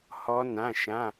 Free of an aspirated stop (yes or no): yes